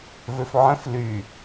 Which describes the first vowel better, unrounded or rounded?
rounded